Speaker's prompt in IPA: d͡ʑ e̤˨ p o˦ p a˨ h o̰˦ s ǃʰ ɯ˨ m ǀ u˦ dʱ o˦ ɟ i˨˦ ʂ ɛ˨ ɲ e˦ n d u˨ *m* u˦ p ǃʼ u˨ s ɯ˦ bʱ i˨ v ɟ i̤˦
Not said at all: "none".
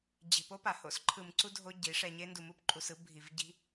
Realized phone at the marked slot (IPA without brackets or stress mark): m